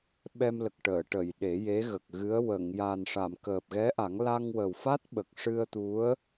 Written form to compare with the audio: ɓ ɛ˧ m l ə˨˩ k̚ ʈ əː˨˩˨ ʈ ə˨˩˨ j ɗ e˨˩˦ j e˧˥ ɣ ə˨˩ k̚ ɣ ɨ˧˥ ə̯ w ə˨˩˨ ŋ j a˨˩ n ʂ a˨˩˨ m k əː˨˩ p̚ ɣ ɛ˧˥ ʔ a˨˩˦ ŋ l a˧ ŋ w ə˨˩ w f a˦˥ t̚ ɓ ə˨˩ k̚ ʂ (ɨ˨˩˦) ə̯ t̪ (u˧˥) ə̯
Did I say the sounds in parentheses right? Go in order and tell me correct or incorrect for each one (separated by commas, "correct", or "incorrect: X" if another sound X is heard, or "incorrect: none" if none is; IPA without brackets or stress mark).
incorrect: ɨ˧, correct